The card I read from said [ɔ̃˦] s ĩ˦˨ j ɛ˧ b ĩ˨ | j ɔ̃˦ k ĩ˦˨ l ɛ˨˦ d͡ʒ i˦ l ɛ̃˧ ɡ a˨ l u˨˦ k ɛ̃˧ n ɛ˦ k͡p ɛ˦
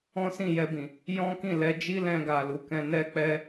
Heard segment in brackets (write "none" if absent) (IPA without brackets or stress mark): ɔ̃˦